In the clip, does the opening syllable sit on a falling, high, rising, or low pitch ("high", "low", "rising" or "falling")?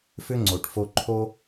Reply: high